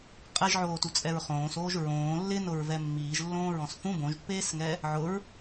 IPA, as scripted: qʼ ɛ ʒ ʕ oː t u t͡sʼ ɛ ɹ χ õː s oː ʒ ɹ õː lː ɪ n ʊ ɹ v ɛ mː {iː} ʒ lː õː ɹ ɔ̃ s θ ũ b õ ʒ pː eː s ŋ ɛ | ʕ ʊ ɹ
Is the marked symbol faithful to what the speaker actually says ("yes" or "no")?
yes